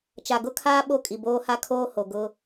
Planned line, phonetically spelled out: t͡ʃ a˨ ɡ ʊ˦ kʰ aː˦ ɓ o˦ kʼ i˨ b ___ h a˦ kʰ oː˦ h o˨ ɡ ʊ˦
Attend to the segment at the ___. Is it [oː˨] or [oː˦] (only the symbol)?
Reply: oː˦